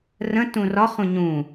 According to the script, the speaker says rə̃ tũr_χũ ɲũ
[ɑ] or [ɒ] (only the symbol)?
ɒ